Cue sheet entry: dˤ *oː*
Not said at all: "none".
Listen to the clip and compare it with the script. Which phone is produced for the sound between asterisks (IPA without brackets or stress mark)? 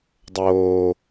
oː